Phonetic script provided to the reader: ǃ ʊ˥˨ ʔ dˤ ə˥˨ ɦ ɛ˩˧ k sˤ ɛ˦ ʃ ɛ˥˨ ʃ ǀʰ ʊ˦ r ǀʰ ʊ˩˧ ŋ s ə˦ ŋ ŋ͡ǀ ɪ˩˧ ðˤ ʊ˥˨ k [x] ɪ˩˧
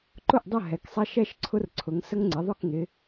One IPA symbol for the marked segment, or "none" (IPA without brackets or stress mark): ŋ